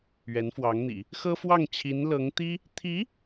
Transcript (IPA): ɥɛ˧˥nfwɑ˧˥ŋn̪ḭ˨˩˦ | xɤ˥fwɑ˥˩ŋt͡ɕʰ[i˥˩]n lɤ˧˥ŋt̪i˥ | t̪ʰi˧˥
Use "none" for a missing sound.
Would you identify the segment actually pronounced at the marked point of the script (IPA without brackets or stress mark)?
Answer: i˧˥